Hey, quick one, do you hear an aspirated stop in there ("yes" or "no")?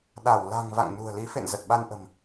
no